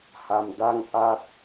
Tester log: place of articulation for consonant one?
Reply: glottal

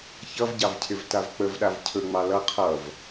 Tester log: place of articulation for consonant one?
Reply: palatal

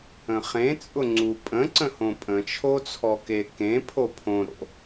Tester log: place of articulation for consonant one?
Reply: uvular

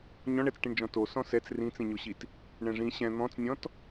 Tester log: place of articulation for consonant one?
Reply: palatal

